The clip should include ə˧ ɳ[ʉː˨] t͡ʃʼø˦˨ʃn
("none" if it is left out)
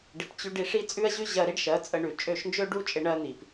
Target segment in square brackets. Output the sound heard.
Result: ʉ˨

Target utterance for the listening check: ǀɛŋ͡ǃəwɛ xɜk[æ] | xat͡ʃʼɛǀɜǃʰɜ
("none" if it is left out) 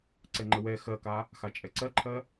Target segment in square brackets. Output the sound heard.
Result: a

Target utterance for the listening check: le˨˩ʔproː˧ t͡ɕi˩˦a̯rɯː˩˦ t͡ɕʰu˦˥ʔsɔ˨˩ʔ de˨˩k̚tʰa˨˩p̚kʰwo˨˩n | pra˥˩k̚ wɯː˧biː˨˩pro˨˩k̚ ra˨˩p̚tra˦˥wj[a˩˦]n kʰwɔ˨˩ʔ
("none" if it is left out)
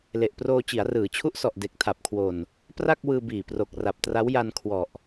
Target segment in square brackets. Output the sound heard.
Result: a˧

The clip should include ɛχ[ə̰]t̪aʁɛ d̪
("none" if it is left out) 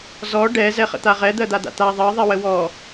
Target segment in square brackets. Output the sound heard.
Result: ə̰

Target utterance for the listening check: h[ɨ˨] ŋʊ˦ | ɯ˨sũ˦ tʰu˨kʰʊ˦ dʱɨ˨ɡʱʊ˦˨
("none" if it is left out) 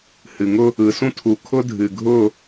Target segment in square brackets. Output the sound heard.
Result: ɨ˨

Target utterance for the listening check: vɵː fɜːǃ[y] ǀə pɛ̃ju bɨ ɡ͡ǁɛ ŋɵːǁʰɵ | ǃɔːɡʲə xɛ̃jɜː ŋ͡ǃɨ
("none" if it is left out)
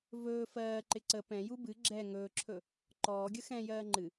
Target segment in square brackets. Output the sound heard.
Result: ɪ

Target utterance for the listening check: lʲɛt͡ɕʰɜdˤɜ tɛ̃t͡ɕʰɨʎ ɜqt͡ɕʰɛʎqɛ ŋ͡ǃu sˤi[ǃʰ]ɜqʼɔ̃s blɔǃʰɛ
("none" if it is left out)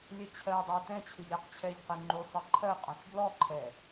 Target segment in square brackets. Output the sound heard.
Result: ǃʰ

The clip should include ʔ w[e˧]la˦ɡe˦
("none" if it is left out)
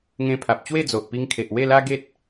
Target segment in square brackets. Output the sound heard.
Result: e˥˧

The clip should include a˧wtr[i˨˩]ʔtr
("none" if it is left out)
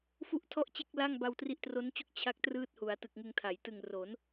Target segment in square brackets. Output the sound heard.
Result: i˦˥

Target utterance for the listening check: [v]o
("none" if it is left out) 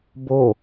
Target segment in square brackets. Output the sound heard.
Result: b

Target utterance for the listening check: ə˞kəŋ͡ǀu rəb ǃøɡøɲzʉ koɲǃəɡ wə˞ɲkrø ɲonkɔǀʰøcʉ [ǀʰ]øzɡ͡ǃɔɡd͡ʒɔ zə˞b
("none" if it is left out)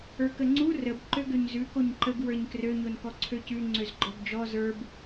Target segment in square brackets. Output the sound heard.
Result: ŋ͡ǀ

